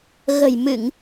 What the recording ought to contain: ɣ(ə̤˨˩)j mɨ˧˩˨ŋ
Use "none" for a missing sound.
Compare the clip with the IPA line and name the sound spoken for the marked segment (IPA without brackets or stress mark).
ə̤˨˩